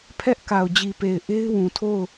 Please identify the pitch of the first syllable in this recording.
high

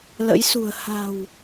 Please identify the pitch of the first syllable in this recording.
rising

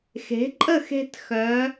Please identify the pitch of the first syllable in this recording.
rising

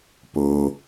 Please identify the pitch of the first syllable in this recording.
low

